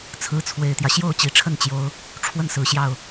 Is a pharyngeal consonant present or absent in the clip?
absent